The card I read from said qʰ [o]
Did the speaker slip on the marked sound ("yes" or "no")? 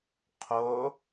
no